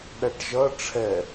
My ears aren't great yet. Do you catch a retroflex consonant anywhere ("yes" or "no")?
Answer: yes